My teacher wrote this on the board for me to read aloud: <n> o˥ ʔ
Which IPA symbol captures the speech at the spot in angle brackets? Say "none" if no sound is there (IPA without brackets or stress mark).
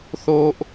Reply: θ